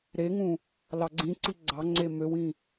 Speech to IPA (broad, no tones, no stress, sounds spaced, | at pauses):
ɾ e ŋ ũ | l ɑ ɡ͡ǀ ĩ ǀ i ɡ͡ǀ ɑ ŋ͡ǀ e m ø w ĩ